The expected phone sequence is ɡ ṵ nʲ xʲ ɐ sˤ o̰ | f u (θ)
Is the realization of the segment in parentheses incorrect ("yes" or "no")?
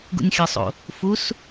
yes